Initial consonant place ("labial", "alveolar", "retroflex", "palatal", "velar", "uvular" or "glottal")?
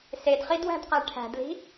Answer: alveolar